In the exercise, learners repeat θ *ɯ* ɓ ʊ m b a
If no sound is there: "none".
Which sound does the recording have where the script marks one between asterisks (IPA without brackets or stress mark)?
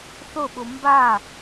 ʊ